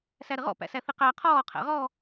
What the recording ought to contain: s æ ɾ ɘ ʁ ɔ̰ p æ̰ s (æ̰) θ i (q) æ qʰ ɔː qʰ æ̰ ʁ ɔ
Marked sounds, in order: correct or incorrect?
incorrect: æ, correct

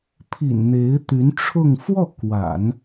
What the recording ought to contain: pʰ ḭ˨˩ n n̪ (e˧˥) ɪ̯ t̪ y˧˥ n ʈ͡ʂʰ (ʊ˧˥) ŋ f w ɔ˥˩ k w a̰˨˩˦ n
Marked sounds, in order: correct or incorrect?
correct, incorrect: ʊ˥˧

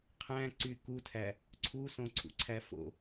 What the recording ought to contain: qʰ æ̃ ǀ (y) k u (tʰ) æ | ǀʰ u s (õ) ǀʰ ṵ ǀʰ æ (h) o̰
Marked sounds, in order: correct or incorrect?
correct, correct, correct, incorrect: f

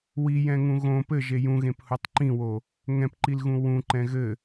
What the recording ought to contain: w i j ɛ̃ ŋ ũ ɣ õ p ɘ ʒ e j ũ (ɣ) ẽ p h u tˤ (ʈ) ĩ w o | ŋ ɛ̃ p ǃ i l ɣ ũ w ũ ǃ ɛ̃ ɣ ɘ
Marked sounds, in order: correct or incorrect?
correct, incorrect: ǃ

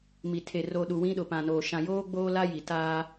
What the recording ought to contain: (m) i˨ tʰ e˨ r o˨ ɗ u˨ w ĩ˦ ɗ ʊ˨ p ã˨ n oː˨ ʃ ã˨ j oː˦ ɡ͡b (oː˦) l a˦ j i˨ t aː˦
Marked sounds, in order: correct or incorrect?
correct, correct

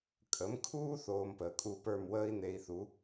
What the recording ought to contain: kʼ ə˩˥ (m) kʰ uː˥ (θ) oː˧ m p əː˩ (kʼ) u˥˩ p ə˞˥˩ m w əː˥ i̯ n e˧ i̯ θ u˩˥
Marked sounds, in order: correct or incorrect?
correct, correct, correct

